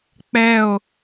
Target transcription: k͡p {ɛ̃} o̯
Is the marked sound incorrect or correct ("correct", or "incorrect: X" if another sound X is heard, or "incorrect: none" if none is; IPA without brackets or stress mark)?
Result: incorrect: ɛ